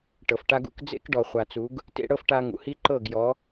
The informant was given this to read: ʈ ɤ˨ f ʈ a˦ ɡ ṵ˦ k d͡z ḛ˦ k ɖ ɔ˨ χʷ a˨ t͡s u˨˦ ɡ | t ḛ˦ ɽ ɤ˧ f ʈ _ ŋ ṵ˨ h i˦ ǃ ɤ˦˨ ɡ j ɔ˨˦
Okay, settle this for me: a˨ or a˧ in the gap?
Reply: a˧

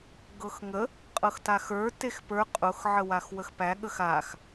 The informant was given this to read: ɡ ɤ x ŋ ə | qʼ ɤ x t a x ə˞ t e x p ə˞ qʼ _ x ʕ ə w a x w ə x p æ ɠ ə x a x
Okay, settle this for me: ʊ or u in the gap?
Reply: ʊ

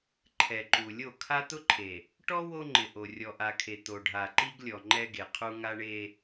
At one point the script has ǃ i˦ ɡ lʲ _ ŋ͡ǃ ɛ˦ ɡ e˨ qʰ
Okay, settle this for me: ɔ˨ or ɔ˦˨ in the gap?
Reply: ɔ˨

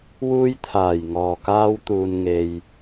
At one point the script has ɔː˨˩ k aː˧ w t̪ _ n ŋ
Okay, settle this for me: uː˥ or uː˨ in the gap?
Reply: uː˨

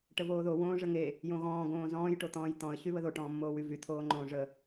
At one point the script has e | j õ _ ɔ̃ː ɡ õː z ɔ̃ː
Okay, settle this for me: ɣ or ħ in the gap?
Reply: ɣ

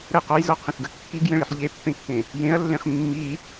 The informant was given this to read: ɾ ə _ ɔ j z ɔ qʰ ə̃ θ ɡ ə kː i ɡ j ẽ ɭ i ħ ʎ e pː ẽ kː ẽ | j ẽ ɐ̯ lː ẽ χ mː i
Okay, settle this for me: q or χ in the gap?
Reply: q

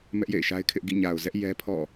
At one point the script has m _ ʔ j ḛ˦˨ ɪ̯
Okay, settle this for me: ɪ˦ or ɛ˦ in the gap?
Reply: ɛ˦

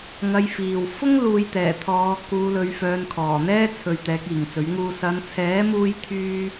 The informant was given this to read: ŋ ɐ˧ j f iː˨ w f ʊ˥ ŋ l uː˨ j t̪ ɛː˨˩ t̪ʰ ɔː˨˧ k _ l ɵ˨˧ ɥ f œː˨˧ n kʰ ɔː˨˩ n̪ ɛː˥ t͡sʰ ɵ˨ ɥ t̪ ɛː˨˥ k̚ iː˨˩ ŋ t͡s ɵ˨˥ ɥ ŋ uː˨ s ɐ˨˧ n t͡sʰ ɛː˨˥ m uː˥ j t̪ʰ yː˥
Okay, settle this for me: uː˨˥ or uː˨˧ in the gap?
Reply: uː˨˧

